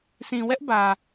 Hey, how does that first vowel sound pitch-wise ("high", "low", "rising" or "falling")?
low